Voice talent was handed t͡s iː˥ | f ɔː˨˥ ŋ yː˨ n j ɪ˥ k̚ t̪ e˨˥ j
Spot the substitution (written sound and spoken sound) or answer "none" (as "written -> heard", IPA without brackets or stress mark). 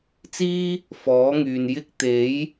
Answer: none